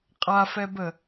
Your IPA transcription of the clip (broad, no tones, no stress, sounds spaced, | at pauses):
qʼ a f ɛ b ə